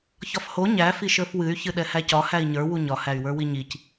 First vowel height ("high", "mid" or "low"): low